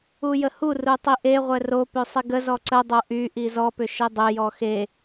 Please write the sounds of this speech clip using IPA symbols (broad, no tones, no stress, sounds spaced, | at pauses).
u j ə h u r u tˤ i ʔ e ʁʷ ɛ r o p ø sˤ i ɡ ə z ɔ ǀ ə dˤ o ʔ y ʔ i z ɔ p ʏ ʃ e dˤ ø j ɔ x e